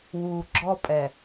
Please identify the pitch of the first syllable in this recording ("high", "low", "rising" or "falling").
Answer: low